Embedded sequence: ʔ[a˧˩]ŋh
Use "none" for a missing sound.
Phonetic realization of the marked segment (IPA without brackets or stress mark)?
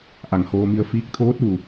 a˧˩